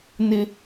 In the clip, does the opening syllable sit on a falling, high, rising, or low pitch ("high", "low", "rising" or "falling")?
high